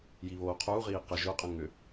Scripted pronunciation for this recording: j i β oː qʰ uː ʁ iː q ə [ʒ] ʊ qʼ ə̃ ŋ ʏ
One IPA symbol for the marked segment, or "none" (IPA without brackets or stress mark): ʒ